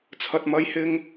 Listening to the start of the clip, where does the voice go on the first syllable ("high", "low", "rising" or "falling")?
low